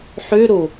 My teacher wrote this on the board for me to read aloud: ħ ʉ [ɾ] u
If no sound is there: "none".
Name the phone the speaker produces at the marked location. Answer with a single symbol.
ɾ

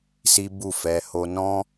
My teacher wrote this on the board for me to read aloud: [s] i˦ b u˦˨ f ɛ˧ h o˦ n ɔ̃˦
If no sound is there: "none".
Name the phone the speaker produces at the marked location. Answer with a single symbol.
s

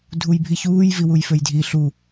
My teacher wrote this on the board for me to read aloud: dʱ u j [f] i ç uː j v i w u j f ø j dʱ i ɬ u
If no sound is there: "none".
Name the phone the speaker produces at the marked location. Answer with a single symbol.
bʱ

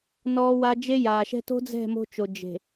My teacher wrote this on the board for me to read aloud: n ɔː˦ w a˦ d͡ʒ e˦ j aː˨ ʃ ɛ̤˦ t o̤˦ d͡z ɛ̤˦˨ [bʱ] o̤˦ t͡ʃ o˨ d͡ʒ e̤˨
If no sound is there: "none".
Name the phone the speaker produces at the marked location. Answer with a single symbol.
m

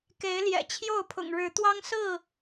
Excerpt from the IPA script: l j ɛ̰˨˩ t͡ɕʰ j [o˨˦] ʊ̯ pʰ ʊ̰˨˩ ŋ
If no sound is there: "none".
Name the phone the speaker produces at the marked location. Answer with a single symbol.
o˥˨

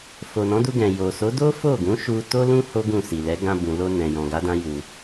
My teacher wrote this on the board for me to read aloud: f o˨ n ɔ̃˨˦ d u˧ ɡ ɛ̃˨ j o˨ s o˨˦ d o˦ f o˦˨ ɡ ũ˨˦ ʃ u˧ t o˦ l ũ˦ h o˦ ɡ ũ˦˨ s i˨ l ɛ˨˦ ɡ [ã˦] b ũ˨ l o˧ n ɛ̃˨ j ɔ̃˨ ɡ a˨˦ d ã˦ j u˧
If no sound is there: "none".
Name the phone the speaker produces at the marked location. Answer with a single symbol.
ã˧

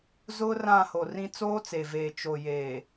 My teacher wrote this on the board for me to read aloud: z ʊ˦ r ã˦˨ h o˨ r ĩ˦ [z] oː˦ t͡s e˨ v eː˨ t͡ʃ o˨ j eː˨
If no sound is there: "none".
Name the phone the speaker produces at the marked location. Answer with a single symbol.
t͡s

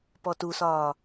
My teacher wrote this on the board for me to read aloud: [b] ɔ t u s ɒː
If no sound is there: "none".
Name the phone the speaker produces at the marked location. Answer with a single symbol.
p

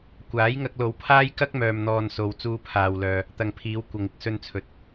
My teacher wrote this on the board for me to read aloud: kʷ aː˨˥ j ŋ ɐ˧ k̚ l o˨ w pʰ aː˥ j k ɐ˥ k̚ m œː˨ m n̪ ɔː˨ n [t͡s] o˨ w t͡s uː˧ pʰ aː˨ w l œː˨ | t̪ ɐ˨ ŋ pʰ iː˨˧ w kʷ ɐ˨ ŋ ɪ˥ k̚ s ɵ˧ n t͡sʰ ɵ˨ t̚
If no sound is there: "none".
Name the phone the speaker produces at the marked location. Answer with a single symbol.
s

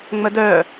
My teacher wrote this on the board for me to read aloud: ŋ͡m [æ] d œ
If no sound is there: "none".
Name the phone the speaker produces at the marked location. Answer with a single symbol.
ə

